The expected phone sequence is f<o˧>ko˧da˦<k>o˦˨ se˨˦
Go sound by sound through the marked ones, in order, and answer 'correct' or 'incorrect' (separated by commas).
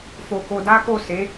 correct, correct